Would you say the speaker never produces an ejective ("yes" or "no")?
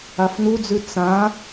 yes